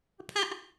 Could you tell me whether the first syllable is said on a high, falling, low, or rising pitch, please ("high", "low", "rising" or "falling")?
high